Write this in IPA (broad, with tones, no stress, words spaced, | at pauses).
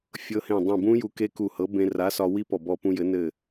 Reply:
fʲɤ˧hẽ˧˩dˤũ˧˩ bũ˦˥ju˧ ke˦˥ku˧˩hɤ˨˥ bẽ˧ra˨˥sɒ˧ wi˦˥ pɔ˧˩bɔ˧pũ˧jɘ˨˥ nɘ˧˩